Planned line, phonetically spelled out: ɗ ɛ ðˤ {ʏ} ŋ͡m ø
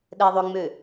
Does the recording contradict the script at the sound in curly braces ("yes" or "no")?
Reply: no